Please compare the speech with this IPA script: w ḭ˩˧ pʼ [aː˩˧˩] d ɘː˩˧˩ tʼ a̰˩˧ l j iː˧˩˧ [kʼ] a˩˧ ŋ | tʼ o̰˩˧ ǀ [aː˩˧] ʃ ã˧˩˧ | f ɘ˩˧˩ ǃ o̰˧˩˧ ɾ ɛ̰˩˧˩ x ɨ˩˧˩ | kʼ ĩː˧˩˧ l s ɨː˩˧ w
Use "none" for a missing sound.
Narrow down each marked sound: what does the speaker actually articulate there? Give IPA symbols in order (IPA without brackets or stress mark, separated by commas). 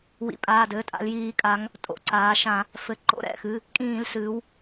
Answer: aː˩˧˩, kʼ, aː˩˧